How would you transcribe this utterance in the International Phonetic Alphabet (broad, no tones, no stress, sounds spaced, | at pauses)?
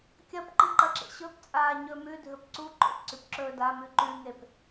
kʲ ɐ p ǃ ɨ ǃ ɐ ǁ ḛ ɕ ɵ p t͡sʼ aː ɲ ɵ m ʉ dʱ ɵ p ǀ u ǃ o̰ p ǀ ʉ p ǁ ɵː d a m ʉ ǃ ʉ ŋ e p